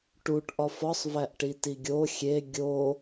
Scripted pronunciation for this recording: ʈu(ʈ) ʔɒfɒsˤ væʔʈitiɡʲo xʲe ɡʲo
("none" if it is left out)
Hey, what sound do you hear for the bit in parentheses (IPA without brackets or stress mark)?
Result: ʈ